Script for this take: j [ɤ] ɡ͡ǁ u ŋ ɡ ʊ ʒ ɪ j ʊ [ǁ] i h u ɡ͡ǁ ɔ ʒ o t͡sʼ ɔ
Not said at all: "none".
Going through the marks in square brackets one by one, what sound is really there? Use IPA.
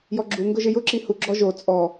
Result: ɔ, ǁ

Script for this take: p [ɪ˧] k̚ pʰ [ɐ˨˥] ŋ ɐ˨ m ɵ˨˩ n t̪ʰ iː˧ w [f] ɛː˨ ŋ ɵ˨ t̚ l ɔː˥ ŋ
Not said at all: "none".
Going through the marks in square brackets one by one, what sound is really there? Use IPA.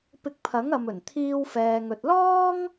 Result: ɪ˧, ɐ˨˥, f

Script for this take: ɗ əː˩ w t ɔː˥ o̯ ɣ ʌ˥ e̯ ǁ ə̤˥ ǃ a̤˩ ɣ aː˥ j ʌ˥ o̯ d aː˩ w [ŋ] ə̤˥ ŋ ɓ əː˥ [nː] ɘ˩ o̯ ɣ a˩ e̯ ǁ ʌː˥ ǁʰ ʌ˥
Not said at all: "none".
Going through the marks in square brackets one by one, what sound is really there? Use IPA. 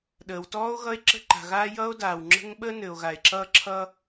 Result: ŋ͡ǁ, n

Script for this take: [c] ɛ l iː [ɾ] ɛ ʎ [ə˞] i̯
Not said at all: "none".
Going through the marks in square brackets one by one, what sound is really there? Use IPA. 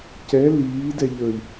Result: c, d, ə˞

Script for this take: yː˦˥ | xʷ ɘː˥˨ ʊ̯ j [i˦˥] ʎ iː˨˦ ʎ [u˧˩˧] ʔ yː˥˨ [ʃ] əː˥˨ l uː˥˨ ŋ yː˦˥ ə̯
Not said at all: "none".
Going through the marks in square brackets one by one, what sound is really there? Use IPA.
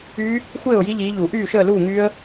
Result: i˦˥, u˧˩˧, ʃ

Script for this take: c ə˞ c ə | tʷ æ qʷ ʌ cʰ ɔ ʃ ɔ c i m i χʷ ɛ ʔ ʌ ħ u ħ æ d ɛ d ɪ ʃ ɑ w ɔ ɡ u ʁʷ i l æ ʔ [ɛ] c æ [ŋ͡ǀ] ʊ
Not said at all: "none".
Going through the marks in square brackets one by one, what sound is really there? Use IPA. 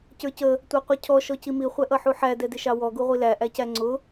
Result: æ, ŋ͡ǀ

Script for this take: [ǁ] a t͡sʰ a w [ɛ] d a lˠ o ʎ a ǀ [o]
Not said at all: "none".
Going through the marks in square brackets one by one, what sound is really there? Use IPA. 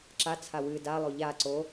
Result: ǁ, ɨ, o

